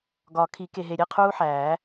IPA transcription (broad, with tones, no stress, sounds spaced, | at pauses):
ɡ ɒ˨˩˦ kʰ i˨˩˦ k e˨ ɦ e˨ ɾʲ e˥˩ qʰ uː˦˥ ħ æː˨˩˦